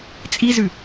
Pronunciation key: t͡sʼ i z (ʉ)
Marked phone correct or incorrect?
correct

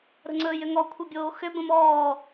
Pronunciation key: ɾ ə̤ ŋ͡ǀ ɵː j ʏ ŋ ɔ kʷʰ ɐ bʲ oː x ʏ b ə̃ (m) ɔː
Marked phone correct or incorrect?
correct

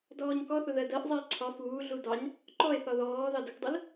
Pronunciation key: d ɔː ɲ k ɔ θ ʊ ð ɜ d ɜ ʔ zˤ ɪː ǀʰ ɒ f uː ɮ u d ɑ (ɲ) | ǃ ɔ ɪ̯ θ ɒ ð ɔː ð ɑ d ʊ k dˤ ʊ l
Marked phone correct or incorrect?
correct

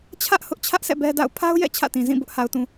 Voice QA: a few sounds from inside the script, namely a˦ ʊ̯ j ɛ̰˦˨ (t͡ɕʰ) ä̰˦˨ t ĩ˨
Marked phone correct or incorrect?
correct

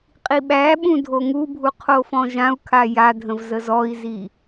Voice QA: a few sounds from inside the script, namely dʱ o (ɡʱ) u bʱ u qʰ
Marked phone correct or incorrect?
incorrect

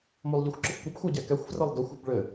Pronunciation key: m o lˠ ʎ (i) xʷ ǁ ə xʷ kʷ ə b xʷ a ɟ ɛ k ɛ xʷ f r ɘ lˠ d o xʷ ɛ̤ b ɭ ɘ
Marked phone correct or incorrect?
correct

